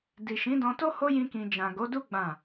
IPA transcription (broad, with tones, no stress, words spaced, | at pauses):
di˨ʃĩ˨˦dɔ̃˧to˦ ho˦jĩ˧kĩ˨ d͡ʒã˨ ɡo˨˦du˦ ɡ͡bã˦˨